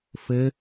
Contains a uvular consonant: no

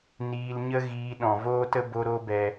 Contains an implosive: yes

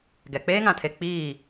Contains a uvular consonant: no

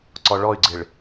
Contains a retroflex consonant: yes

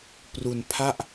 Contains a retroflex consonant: no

